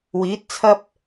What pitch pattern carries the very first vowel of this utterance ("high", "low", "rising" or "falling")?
rising